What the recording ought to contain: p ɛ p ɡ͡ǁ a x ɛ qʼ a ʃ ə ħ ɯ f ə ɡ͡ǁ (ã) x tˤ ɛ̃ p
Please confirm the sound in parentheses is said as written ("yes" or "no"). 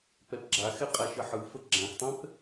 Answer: yes